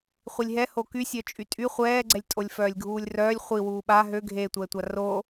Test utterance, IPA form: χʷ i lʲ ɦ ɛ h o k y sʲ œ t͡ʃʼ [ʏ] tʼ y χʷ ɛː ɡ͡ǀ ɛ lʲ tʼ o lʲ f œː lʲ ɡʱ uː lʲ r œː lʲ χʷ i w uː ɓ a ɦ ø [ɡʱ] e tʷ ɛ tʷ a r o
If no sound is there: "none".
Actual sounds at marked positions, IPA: y, ɡʱ

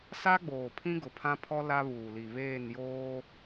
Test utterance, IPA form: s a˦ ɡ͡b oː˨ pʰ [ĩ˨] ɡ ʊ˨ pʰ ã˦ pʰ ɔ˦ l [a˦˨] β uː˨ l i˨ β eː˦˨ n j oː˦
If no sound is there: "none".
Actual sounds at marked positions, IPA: ĩ˦, a˦

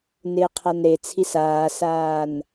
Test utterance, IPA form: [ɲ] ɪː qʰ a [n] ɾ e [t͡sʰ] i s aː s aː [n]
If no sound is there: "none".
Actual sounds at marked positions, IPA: n, n, t͡sʰ, n

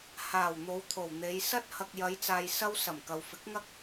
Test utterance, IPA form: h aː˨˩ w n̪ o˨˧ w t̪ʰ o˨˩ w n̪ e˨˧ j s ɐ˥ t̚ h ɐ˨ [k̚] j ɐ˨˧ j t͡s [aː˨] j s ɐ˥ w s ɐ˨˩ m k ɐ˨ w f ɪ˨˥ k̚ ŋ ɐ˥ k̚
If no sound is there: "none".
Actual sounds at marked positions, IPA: k̚, aː˨

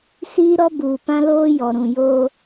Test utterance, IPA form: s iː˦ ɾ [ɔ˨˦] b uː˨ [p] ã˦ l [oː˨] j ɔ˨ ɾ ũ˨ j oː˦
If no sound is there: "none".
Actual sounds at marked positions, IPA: ɔ˦, p, oː˦

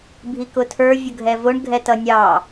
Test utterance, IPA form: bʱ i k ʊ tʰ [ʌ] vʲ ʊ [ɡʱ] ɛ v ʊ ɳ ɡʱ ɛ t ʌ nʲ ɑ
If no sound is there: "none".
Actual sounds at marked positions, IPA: ə˞, ɡʱ

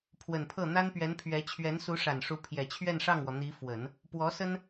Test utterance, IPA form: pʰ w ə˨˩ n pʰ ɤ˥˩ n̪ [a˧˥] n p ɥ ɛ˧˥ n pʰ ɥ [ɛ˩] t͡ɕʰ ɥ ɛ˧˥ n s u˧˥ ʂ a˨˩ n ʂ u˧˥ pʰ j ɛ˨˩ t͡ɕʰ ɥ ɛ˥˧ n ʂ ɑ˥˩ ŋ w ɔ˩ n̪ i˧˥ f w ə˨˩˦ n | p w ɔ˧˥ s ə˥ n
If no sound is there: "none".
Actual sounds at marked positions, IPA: a˥, ɛ˧˥

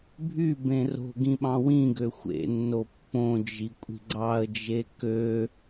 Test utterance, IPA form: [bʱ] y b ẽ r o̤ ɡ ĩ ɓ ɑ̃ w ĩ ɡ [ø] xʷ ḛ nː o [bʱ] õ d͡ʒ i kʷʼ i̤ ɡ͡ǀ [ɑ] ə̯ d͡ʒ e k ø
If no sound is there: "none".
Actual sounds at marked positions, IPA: bʱ, ø, pː, ɑ

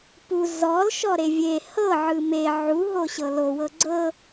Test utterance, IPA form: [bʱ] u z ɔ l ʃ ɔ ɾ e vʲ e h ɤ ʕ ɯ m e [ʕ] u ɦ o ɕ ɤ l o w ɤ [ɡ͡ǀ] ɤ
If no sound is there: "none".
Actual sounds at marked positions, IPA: p, ʕ, ɡ͡ǀ

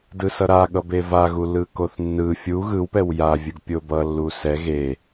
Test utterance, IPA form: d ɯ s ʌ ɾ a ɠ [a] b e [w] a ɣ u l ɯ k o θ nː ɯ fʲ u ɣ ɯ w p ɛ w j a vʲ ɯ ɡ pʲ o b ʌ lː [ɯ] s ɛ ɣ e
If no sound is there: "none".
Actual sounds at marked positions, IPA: ʌ, v, u

